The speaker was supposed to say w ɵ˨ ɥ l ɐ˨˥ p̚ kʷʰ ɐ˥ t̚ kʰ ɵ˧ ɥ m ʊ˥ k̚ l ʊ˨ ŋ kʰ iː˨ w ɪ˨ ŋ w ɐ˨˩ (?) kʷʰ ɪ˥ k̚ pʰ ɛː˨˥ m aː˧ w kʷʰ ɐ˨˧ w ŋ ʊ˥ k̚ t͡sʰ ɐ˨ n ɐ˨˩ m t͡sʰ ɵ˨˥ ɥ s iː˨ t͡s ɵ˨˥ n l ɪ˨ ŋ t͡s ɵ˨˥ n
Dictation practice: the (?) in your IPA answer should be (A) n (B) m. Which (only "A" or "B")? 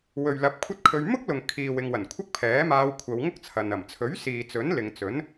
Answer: A